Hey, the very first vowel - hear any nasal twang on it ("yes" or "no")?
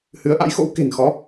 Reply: no